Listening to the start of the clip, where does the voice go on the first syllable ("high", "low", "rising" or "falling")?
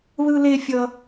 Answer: high